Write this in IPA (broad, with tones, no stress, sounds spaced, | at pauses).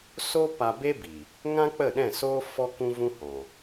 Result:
s o˦ p a˧ b e˦ b i˨ | ŋ ã˦ k͡p ə˦˨ ɗ ɛ̃˦˨ s oː˦ f ɔ˦ k ũ˦ v ũ˦ h ɔ̃˨